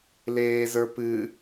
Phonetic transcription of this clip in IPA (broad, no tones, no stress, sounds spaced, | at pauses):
l eː z ə˞ p ɨ